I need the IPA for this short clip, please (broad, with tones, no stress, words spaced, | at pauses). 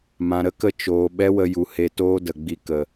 mã˨ɾə˦kə˦˨ t͡ʃoː˨ ɓɛ˦wə˧ju˨ he˧toː˦ də˨ ɡ͡bi˧kə˨